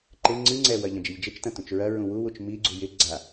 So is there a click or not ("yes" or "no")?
yes